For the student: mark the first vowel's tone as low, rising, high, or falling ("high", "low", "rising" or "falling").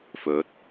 rising